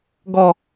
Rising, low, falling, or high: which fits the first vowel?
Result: low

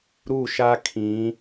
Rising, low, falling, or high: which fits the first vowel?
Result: falling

